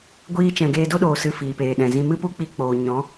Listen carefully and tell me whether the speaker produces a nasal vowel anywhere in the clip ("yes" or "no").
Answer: yes